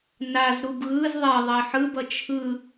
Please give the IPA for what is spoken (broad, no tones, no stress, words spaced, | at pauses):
naz ɾubɣɯz ðˤe ðˤiħɯbʌ t͡ʃʰɯ